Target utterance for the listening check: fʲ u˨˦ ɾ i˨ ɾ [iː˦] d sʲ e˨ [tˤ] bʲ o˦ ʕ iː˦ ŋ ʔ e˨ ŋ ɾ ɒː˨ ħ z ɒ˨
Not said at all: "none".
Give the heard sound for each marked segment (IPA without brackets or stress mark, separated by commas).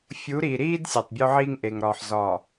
iː˦, tˤ